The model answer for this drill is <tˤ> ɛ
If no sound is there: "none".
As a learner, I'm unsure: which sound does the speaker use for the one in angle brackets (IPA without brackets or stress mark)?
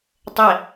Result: tˤ